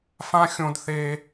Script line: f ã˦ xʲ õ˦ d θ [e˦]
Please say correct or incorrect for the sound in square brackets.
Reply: correct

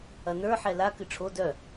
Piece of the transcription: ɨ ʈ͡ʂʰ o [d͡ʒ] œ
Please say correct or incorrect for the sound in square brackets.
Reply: incorrect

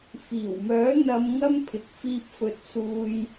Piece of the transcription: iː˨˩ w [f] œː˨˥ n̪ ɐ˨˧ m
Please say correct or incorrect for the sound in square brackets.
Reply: incorrect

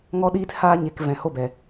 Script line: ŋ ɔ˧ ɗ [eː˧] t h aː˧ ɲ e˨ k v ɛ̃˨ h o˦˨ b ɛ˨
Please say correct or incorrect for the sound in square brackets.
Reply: incorrect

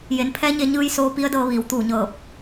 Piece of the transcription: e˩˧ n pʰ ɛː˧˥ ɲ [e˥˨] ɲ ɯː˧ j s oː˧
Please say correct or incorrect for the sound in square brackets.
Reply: incorrect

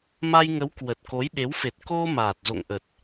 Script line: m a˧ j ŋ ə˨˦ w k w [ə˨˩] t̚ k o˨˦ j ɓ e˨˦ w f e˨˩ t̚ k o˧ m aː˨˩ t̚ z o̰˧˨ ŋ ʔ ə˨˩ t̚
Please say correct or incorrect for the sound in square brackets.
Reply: correct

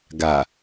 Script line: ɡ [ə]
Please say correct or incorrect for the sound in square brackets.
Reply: incorrect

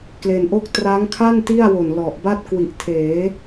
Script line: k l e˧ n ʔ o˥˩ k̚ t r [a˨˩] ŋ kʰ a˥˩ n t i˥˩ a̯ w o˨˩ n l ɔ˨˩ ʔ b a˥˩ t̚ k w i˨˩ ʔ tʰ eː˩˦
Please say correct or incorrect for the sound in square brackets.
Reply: incorrect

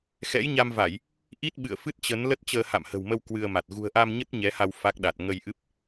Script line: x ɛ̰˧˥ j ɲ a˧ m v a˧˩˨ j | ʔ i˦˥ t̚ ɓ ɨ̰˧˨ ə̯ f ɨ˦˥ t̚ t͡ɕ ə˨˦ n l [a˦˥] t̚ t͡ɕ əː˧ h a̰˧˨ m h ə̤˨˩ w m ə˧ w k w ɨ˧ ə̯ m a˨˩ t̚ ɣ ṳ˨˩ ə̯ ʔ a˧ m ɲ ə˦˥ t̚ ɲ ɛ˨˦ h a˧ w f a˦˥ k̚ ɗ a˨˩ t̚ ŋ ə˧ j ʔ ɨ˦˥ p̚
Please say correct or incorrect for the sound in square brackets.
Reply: incorrect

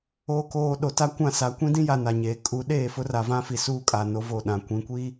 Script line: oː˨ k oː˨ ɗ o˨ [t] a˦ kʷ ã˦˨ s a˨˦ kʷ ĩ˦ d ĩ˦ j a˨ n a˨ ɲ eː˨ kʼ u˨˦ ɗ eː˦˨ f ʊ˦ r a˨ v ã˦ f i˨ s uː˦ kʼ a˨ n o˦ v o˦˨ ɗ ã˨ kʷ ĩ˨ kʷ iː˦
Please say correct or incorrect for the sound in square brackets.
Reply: correct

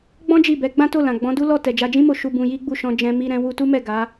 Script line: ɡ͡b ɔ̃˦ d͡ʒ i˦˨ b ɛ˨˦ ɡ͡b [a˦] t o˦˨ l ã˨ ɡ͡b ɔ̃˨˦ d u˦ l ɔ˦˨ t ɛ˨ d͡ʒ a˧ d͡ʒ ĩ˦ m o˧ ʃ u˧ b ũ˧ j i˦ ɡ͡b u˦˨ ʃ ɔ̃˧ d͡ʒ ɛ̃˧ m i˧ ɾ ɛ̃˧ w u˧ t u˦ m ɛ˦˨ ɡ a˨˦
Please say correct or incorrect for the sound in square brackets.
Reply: incorrect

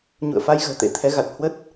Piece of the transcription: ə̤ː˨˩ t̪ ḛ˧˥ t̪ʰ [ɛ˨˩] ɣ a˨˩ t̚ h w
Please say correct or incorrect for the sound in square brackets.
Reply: incorrect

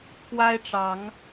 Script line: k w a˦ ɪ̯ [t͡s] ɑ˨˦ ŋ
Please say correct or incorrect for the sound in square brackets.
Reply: incorrect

